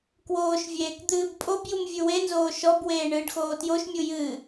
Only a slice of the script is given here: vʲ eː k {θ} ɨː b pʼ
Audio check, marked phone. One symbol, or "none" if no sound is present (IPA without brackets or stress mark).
d̪